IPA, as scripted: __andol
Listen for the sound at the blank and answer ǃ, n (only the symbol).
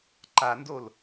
ǃ